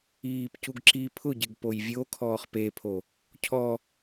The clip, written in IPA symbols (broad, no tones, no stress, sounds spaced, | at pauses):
iː p c u ɡ ǁ i pʰ ʊ ɟ ɪ ɡ p o j vʲ o kʰ ɔː χ p e pʰ o | cʰ ɔ